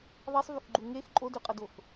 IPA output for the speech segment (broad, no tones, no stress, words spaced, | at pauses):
ðˤesˤvyxɡ͡ǃu ŋex ǃʼodyqʼɤdox